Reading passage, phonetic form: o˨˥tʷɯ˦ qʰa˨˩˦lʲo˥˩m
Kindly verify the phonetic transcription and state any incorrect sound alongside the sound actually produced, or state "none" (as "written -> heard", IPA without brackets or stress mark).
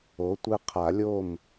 none